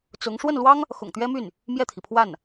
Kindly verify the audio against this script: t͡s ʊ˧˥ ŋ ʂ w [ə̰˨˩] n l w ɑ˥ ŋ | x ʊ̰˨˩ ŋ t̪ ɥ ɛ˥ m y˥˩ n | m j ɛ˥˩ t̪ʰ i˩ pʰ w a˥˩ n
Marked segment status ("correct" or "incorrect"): incorrect